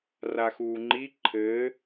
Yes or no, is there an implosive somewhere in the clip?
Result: no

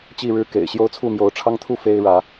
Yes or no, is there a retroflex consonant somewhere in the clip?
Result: yes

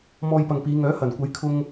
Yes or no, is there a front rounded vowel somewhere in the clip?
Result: yes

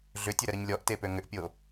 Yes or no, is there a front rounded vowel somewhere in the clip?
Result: yes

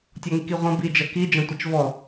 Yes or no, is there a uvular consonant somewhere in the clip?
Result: yes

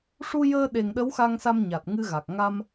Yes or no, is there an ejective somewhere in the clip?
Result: no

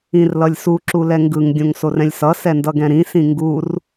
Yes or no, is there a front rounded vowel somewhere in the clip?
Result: no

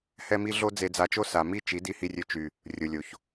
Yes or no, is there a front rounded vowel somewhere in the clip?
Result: yes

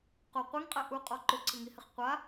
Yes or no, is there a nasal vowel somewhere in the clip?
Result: no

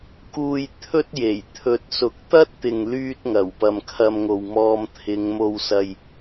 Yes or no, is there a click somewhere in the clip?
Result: no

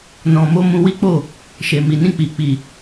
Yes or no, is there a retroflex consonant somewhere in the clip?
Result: no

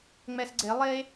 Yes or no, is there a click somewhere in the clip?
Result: yes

